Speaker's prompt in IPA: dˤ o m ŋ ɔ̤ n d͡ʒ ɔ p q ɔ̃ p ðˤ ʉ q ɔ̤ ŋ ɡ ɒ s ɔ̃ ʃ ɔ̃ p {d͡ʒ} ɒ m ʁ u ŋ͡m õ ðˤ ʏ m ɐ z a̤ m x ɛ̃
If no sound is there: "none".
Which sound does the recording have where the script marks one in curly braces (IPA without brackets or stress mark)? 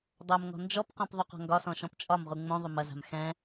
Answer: t͡ʃʼ